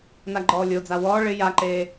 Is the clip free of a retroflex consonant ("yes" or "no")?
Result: no